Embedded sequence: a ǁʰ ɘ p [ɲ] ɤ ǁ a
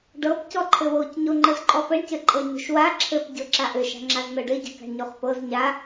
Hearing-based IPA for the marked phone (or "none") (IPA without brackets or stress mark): ɟ